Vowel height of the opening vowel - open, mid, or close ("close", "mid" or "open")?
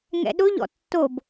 mid